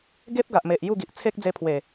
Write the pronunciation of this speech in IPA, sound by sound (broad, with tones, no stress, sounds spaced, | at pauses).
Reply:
ɡ e˦ p̚ ɡ a˨ ʔ m e˨ ʔ j u˥˧ ɡ i˨ ʔ t͡sʰ e˦ k̚ d͡z e˧ pʰ w e˨˩